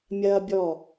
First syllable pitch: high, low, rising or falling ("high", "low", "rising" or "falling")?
high